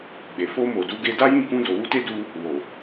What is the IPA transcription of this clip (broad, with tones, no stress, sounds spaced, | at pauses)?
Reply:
ɡ͡b e˨ f o˧ m o˨ d u˨˦ ɡ e˧ d a˦ j ĩ˦˨ k ũ˧ d o˨ w u˧ t e˦ d u˦ | w o˨